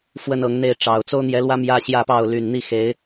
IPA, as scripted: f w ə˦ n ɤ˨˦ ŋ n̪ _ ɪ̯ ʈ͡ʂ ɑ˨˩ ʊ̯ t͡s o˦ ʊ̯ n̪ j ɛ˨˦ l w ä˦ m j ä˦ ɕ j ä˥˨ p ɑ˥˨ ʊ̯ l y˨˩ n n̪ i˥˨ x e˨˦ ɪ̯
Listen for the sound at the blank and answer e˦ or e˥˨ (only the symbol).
e˥˨